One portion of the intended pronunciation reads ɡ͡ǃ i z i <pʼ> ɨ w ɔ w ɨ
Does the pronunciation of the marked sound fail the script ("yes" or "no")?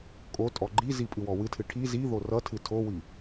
no